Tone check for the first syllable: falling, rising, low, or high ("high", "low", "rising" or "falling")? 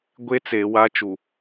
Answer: high